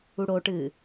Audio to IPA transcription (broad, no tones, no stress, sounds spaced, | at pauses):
u ɽ o ʈ ɨː